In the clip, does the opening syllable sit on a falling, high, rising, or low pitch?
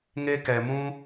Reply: high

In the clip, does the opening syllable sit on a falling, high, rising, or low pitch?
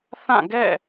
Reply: falling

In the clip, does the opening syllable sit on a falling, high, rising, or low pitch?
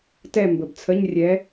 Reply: falling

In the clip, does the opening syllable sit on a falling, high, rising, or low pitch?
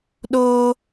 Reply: high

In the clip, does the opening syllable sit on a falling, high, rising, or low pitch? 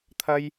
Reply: high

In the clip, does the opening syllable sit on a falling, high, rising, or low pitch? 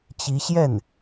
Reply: rising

